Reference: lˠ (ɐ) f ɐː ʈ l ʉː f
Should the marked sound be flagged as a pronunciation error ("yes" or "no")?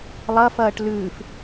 no